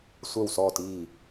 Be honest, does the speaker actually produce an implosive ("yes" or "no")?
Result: no